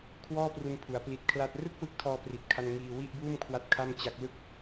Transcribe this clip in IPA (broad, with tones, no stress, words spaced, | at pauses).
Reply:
kʰwɔː˥˩pru˧npʰu˩˦a̯ pli˨˩t̚ kʰla˥˩t̚ rɯ˥˩k̚ wɯ˦˥k̚tʰɔː˧pri˨˩t̚kʰa˧n ŋiː˧wi˥˩ʔbuː˥˩mkʰwa˦˥t̚ kʰa˥˩mt͡ɕa˦˥k̚ lɯ˦˥k̚